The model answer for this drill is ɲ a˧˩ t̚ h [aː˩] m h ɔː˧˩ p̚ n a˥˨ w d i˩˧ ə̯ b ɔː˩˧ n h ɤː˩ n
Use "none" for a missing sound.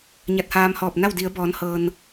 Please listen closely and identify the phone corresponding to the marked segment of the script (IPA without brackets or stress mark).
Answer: aː˧